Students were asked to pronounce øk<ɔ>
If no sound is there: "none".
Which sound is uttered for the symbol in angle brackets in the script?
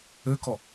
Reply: ɔ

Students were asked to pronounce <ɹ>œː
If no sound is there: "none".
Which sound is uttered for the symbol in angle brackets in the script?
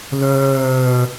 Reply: l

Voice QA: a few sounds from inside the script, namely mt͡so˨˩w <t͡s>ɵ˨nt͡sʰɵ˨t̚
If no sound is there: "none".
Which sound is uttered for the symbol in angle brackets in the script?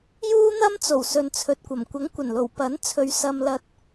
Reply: s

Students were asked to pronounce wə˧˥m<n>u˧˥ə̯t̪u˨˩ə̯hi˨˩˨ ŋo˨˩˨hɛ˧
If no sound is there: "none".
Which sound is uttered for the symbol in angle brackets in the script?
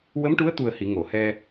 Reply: ʈ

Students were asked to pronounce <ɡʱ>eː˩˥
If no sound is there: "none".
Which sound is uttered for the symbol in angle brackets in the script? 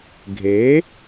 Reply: ɡʱ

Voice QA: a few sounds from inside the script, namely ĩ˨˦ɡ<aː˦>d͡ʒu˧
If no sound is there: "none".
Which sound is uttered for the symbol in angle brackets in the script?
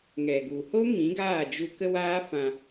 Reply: aː˦˨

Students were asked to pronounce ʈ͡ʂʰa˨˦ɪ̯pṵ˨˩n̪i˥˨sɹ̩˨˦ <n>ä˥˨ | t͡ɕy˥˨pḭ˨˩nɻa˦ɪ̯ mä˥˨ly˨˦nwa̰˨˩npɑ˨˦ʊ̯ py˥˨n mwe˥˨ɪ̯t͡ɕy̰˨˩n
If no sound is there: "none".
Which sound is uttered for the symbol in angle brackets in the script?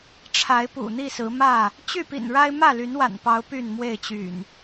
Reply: m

